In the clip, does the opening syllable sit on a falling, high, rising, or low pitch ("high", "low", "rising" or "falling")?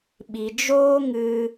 low